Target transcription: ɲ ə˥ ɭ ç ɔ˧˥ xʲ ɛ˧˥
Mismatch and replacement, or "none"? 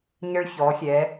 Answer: none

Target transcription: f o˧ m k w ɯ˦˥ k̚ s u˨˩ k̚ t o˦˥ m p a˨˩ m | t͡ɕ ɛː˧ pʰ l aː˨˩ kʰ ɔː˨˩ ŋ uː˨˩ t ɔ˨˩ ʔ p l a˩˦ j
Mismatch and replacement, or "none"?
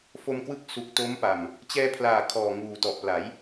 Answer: none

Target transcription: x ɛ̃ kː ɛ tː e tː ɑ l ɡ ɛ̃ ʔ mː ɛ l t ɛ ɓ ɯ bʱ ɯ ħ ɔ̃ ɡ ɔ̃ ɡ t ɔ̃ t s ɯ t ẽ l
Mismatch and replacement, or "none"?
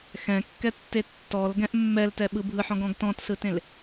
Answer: ɑ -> ɔ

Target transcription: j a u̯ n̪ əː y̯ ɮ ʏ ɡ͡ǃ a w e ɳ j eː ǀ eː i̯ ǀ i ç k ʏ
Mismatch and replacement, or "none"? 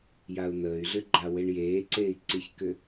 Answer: none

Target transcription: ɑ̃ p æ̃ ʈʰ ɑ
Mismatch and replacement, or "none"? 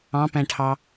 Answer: none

